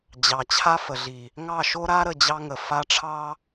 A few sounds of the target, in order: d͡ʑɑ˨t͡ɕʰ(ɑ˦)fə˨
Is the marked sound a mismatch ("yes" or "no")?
yes